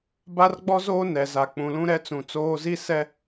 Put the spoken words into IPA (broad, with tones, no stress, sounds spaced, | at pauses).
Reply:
b a˦ r ɡ͡b ɔ˦ z oː˦ n ɛ˨ z a˨ k͡p ũ˨ l ũ˦ ɾ ɛ˦ t͡s ũ˨ t͡s oː˦ z i˦ s ɛ˦